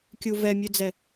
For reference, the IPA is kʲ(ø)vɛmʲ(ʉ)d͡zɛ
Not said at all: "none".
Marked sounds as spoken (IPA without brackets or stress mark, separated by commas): u, ʉ